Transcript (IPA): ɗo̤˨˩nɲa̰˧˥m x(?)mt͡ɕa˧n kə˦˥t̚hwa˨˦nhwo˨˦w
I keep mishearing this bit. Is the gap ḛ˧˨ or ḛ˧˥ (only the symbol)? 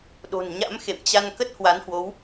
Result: ḛ˧˨